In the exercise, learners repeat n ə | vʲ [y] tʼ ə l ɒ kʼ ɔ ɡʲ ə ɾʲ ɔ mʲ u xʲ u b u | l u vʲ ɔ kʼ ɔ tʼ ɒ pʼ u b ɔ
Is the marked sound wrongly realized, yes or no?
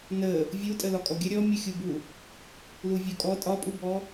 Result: yes